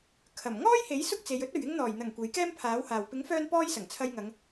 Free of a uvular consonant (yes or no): yes